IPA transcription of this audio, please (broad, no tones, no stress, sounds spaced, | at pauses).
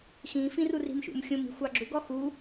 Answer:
x ĩ f ĩ r u r i̤ m ʃ ṵ m xʲ ũ m i̤ xʷ ɑ ɡ͡ǁ u ɡ ɔ x u